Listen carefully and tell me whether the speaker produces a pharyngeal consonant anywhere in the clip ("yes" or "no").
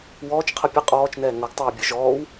no